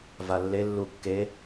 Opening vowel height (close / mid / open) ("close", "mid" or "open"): open